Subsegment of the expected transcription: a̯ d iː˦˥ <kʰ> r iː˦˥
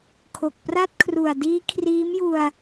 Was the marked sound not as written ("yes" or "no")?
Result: no